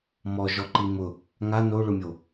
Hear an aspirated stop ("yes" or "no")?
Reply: no